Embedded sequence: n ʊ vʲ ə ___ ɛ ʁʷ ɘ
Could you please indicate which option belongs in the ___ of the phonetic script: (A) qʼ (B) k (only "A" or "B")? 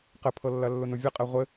A